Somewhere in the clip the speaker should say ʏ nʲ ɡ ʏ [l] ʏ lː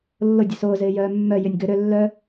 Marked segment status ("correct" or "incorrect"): incorrect